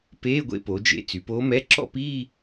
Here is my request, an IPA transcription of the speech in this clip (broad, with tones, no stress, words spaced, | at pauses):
peː˧˥˧ɡʷḛ˥˧po˩˧d͡ʒḛ˧˥˧ t͡sy˩˧poː˧˥mɛ˧˥˧ ǁɔ̰˥˧piː˥˧